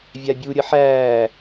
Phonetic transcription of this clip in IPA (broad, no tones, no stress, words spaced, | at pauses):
vʲabʲuɾʲə ħæː